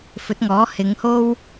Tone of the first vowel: rising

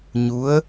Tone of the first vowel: rising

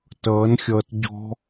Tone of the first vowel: rising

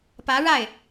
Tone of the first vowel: rising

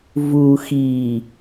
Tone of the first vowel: low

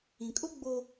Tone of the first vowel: low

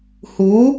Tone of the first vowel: rising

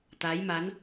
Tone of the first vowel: rising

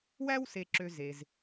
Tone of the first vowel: high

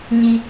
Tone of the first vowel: high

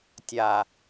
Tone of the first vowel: low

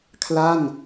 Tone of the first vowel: falling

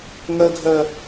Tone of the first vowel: high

